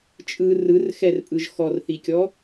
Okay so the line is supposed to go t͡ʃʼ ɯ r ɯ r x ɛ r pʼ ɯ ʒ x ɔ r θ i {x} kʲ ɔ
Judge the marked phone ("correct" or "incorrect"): incorrect